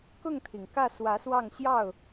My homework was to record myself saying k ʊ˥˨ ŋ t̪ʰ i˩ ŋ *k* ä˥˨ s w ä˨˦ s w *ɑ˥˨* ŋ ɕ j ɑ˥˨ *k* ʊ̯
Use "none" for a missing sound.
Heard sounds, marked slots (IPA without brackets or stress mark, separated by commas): k, ɑ˥˨, none